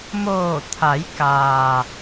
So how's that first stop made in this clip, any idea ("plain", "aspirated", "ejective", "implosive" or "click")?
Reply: aspirated